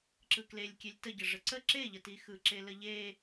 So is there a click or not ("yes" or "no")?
yes